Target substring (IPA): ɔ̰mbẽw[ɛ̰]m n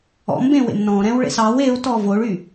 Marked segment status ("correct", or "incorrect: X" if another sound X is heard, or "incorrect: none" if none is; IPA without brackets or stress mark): incorrect: ḛ